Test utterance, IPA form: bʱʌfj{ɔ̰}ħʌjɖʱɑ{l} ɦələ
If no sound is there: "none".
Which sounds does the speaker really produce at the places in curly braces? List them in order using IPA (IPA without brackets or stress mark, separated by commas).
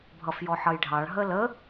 ɔ, ɭ